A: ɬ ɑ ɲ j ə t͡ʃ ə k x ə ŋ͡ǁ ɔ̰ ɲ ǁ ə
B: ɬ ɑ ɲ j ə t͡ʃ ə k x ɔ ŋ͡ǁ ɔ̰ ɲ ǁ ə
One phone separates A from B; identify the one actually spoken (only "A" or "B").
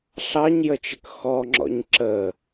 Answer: B